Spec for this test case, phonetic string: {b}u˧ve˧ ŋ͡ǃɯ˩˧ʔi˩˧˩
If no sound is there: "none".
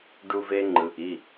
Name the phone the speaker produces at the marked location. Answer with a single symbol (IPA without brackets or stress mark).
ɖ